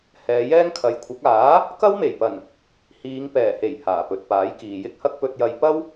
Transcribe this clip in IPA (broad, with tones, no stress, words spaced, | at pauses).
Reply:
hɛː˨˧jɛː˥ŋkʰɐ˨˧jkʷʰɐ˨˥k̚ aː˨˥ | kɐ˥wme˨˩jpɐ˨˩n | hiː˨˧ŋpɛː˨˩he˨˩j haː˨˩pɵ˨t̚paː˨˥jkiː˨ jɪ˧k̚hɐ˧k̚ pɵ˧t̚jɐ˧j pɐ˥w